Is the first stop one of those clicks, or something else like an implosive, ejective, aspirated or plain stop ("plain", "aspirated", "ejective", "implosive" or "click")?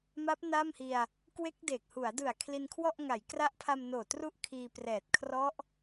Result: plain